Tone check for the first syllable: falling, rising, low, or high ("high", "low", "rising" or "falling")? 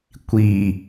low